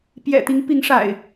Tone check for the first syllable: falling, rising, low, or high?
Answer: low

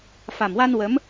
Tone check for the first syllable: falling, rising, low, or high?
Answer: low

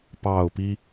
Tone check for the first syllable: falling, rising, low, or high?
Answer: falling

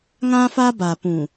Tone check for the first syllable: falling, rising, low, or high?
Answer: high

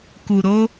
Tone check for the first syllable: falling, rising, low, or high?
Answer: low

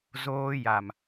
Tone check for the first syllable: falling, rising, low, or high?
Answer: high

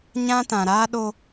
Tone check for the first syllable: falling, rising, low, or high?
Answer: high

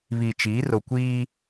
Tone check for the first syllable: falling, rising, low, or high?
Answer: low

